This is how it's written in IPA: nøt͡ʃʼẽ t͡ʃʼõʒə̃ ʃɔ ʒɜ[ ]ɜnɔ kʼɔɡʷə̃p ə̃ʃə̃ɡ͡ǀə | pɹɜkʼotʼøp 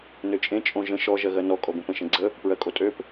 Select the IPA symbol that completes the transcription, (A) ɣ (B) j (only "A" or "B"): A